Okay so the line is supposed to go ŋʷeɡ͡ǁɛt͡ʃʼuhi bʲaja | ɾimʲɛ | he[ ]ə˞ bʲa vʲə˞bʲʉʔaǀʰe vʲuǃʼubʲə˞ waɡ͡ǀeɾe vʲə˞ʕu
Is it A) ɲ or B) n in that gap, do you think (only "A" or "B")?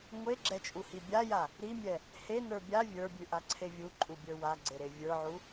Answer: B